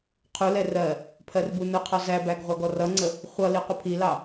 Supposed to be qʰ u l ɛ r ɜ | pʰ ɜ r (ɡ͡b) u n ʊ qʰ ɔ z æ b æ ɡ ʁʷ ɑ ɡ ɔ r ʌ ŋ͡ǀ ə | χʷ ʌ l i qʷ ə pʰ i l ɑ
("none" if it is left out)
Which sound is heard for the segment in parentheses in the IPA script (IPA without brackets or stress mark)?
b